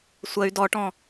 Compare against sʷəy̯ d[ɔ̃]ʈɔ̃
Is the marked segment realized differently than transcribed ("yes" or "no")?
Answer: yes